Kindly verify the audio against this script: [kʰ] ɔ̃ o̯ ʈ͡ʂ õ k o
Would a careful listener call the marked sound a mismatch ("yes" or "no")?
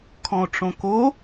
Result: no